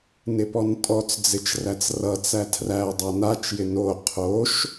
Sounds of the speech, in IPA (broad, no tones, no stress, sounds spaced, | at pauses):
n ɪ p ɔ n tʼ ɔ t͡s d͡z ɪ t͡ʃ r æ t͡s r ʌ t͡s æ tʰ r æ ɐ̯ dˤ æ n a t͡ʃ j ɪ n o qʰ o ʃ